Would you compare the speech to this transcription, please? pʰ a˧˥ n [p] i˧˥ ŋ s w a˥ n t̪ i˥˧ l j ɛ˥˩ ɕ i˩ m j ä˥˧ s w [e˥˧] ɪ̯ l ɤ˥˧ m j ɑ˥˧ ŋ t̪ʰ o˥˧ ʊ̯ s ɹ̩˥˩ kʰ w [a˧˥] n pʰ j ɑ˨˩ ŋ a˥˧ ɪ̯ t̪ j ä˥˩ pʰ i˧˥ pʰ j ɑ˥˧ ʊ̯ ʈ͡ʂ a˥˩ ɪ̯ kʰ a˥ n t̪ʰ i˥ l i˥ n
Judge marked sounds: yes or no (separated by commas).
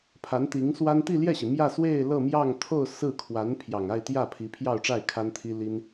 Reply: no, yes, yes